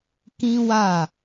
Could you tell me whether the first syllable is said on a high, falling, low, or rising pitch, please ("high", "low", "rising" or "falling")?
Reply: high